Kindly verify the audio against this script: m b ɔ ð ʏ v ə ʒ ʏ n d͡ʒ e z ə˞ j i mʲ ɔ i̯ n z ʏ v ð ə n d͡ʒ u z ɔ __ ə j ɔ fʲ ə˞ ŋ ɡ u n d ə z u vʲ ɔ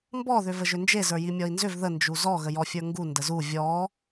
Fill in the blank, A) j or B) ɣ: B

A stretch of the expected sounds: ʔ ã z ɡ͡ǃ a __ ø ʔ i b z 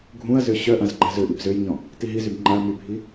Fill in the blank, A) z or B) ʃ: A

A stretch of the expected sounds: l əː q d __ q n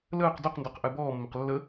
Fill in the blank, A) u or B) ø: B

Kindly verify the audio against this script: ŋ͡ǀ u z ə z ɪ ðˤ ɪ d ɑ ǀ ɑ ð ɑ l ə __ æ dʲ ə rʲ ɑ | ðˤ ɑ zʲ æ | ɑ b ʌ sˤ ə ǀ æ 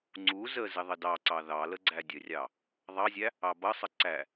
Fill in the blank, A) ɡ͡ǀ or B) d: A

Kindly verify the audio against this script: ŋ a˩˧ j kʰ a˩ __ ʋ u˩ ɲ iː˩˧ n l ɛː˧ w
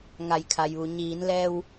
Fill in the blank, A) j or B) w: A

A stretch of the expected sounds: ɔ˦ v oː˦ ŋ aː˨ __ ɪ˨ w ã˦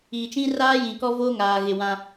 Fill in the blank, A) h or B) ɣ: B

